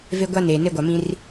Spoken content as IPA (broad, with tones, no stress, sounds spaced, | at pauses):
v e˦ ɡʷ a˦ n eː˨ n e˦ ɡʷ a˨ m ĩ˦ r